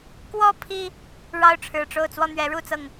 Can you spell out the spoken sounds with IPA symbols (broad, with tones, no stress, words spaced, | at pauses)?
kwɔ˦ pʰi˦ | ɻɑ˦ʊ̯ʈ͡ʂʰɻ̩˨˩ʈ͡ʂo˥˨ʊ̯ t͡swɔ˥˨n̪ɥɛ˨˦ɻu˥˨ t͡sɤ˥˨ŋ